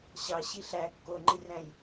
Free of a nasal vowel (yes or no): no